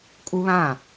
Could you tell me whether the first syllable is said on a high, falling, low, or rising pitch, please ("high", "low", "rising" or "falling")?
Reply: high